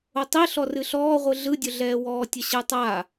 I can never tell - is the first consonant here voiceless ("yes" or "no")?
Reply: yes